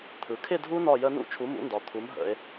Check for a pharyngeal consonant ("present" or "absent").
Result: absent